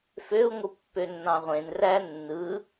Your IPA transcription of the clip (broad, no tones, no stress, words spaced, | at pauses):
føu̯ŋʷɯ pːønːɑ̃ʁʷẽn rænːɯ